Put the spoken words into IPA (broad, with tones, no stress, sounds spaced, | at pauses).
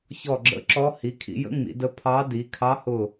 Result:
ç ɔ˧˩ ɡ͡ǁ ə̰˧˥ ǁ ɔ˧˥ h i˩˧ kʰ ḭ˩˧ j ə̰˧˥ ŋ͡m ḭ˩˧ d ə˧˥ pʰ ɑ˧˥ d i˩˧ kʰ ɑ˧˥ h ʊ˧˩